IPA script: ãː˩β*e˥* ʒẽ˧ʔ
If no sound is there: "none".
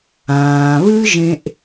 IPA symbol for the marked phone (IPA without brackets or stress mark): ɨ˥